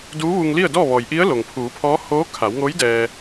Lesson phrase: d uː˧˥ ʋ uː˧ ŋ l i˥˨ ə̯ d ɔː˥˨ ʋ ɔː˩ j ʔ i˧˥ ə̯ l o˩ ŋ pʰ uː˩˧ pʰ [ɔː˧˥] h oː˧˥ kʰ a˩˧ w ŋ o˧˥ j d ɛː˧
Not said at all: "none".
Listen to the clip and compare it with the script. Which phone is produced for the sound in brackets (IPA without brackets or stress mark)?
ɔː˧˥